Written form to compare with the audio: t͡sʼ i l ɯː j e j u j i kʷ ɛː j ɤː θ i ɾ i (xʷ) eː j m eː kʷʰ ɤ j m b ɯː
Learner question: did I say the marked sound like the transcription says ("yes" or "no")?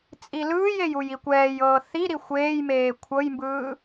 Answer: yes